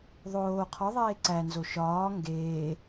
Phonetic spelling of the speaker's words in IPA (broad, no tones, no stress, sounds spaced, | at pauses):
ðˤ oː qʰ ɔ ðˤ eː ǀ æ n z o ʃ ɒː ŋ ɡ eː